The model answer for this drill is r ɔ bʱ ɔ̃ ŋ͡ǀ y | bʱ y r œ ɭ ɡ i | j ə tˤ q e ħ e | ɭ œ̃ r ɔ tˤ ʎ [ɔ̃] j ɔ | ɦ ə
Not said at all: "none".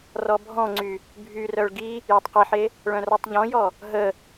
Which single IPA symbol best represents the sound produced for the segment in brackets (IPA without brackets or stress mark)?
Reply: ɔ̃